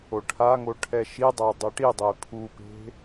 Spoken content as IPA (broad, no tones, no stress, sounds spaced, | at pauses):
o ʈʰ a ŋ o ʈʰ ɛ ʃ i dˤ a dˤ e ʈ i dˤ e pʰ u p e̤